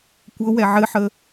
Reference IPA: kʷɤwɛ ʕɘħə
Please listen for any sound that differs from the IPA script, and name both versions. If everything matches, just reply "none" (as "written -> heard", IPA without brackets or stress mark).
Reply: none